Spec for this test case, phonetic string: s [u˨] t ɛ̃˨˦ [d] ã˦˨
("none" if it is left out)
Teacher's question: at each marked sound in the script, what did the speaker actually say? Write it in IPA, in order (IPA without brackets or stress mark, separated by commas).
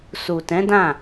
u˨, d